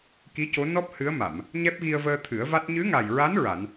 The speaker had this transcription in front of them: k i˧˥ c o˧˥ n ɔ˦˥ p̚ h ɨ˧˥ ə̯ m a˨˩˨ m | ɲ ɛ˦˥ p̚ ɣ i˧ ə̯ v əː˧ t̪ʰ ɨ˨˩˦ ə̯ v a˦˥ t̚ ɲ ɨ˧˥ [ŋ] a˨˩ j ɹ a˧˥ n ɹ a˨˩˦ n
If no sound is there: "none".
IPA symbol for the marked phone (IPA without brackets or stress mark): ŋ